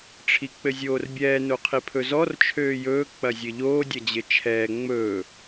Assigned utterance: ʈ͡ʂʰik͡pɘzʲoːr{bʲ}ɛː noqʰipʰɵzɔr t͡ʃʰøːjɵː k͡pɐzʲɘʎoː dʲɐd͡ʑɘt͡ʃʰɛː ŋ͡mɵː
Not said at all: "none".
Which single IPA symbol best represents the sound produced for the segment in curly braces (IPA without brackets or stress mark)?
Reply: bʲ